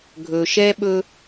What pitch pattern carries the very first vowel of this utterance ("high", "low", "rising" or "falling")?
low